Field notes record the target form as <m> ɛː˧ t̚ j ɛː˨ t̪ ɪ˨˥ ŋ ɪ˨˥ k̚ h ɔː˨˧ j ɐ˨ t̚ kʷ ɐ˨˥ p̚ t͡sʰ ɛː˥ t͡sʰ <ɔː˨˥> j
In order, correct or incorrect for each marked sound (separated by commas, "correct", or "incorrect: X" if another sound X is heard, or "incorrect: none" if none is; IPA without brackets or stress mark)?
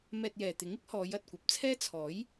correct, correct